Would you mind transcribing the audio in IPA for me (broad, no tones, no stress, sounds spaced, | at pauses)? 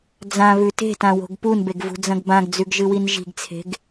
d͡z ã β ʉ t e̤ t ã w o̤ ɡ p u n b e ɡ v ṳ d͡z ɐ̃ ɡ b ã ɡ d͡z ʉ ɡ ʒ ɨ w i n ʒ i̤ ɡ t͡sʰ e̤ ɡ